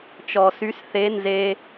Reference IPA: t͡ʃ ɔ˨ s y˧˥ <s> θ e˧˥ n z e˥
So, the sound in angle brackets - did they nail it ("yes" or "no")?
yes